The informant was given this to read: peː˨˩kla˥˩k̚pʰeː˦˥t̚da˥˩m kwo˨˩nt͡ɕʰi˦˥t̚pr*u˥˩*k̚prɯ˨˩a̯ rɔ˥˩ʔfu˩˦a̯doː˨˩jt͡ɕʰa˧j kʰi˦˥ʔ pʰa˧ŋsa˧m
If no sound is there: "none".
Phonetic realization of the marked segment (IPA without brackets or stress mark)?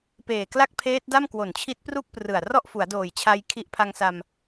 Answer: u˥˩